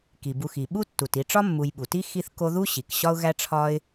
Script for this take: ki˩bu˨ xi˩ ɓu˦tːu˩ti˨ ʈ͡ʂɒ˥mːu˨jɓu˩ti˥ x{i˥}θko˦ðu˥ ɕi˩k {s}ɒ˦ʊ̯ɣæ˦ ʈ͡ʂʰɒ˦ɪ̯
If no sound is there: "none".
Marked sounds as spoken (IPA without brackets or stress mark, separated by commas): i˦, ɕ